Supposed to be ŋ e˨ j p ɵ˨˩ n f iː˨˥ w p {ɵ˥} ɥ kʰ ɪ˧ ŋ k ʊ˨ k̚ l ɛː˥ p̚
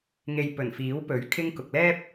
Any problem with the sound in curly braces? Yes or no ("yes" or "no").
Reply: yes